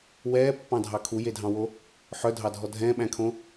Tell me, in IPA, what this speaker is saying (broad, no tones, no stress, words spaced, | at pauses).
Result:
wɛːpːɑ̃dʱɑ kʰujedʱɑ̃wo | ħœdʱɑdʱɔ dʱɛ̃ɓæ̃kʰõ